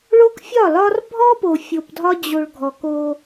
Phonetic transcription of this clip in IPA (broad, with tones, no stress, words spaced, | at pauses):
ɭo˦kfʲɒ˦˨lɒ˦r bʱɔ˦po˨ fʲo˨pdʱɒ˦ d͡ʑo˨ɭ ɡʱɔ˨ko˦